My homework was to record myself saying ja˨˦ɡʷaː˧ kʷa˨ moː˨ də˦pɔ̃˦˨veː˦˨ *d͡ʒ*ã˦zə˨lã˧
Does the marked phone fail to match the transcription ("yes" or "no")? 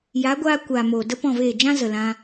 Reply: no